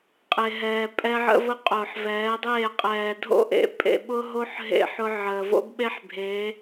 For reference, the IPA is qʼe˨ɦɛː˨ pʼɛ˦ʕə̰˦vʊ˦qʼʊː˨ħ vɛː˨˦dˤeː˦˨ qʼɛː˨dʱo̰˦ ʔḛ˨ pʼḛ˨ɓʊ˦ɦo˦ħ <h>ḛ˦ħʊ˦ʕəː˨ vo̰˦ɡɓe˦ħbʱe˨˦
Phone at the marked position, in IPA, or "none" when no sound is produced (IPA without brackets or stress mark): ɦ